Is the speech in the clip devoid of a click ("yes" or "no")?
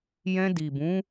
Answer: yes